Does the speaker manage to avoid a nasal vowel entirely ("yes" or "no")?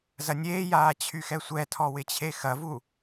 yes